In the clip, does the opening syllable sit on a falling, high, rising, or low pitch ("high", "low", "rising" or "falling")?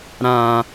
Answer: low